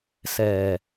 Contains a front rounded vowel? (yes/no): no